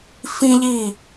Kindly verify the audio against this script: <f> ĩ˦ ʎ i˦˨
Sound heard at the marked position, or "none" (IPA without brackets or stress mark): f